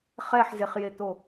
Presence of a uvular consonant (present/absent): present